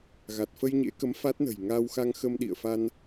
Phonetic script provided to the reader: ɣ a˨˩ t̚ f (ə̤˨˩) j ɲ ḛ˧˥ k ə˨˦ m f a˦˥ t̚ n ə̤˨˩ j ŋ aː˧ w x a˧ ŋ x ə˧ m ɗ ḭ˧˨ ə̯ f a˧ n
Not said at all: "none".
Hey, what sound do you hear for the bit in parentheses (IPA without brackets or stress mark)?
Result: ə˧